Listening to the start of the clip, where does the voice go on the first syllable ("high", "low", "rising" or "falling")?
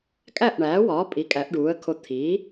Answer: falling